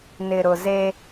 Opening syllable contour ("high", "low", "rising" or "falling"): low